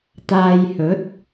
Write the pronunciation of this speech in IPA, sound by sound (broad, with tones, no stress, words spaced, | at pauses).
t̪aː˧jhɵ˨˥t̚